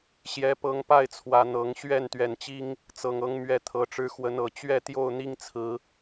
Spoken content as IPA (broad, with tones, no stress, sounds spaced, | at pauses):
ɕ j ɛ˨˦ p ɤ˨˦ ŋ p a˥˨ ɪ̯ t͡sʰ w ä˨˩ n̪ ɤ˨˦ ŋ ɕ ɥ ɛ˥˨ n t̪ ɥ ɛ˨˩ n t͡ɕ i˦ ŋ | t͡s ɤ˨˩ ŋ ɤ˨˦ ŋ m ɥ ɛ˨˦ t̪ʰ ɤ˨˩ ʈ͡ʂ ɻ̩˨˦ x w ə˨˦ n ɤ˨˩ t͡ɕ ɥ ɛ˥˨ t̪ j o˥˨ ʊ̯ n̪ i˦ ŋ t͡sʰ ɹ̩˨˦